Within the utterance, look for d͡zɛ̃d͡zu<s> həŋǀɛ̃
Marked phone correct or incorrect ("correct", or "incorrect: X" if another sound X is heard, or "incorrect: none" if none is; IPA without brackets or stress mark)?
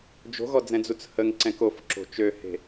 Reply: incorrect: t͡s